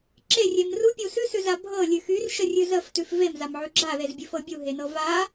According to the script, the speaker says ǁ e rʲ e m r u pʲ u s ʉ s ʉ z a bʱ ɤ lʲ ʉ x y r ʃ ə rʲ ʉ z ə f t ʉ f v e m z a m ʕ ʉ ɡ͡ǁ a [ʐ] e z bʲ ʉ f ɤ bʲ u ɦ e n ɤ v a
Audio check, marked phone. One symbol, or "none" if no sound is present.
ð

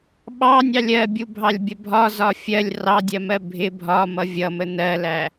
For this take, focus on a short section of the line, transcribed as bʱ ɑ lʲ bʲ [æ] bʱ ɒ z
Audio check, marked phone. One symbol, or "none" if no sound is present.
ə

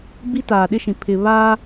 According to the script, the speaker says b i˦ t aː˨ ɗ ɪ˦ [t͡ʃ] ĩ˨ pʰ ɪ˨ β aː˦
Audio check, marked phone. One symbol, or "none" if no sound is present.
ʃ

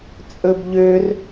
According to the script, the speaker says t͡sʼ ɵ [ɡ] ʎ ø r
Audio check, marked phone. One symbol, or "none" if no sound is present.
b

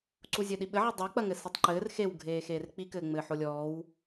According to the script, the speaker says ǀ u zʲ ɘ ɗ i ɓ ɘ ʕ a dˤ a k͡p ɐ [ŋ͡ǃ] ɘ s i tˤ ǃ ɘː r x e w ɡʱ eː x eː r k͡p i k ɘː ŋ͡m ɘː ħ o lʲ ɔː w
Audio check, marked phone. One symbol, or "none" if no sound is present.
ŋ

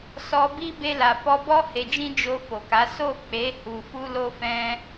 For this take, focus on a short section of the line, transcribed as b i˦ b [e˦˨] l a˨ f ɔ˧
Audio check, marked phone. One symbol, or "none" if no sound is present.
e˧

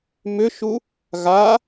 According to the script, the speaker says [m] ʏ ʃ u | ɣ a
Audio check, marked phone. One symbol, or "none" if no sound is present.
m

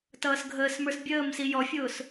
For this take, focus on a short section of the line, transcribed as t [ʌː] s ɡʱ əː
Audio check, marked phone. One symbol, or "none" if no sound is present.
ʌː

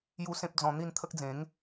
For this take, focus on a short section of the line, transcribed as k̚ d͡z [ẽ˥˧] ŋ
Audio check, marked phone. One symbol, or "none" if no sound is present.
ẽ˨˦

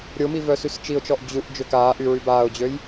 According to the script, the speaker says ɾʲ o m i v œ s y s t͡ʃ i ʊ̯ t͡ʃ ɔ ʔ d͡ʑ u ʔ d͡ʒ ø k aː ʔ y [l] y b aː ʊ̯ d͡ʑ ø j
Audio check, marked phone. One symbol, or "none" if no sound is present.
ɹ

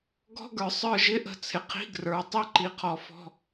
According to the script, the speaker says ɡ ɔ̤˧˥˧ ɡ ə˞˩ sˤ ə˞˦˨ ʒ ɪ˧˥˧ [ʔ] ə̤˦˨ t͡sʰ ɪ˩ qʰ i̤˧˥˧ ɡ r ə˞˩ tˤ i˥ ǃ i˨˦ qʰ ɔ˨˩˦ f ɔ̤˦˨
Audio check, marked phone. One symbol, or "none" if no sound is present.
ʔ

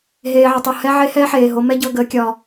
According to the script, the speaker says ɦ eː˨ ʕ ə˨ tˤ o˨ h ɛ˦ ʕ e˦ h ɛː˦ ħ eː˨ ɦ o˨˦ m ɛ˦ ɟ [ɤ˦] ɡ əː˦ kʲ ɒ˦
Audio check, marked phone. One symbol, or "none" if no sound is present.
ɤ˦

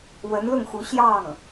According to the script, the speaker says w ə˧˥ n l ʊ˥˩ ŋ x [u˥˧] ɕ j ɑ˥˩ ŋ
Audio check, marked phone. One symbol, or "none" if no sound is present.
u˧˥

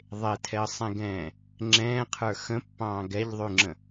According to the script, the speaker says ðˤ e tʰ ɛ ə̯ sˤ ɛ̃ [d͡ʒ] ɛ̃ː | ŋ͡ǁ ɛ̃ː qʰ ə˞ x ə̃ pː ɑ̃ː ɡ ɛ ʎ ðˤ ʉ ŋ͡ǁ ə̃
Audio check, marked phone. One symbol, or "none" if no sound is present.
ɡ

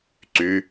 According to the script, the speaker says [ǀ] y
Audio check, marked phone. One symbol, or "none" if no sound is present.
ǀ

